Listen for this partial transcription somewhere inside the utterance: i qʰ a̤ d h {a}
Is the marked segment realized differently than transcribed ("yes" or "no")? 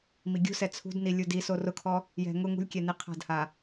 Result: no